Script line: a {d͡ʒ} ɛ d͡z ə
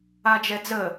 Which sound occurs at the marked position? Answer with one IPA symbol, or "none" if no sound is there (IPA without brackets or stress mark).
d͡ʒ